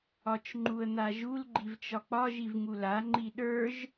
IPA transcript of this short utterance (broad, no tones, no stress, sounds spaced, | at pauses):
ɒ t͡ʃ ŋ͡ǃ u ə̯ n̪ a ʒ u l ɡ͡ǃ i v t͡ʃ ɒ k͡p ɒ ʒ i v ŋ u l a ŋ͡ǃ i ɗ ə˞ ʒ